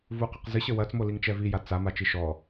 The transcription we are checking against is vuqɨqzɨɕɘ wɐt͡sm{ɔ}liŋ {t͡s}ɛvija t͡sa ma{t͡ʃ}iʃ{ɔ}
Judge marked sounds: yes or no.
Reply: no, no, yes, yes

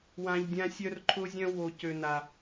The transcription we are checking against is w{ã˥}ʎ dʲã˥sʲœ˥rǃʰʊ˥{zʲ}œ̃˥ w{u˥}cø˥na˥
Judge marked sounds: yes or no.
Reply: yes, yes, no

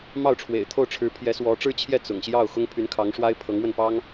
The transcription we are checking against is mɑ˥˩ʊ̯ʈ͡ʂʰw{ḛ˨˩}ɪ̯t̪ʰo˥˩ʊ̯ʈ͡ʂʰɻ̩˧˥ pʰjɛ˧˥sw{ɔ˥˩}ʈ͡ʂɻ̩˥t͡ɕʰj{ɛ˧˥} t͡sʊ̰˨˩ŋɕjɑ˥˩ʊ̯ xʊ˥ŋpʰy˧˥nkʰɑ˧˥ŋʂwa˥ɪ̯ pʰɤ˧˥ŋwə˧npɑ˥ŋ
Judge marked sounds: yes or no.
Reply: yes, no, no

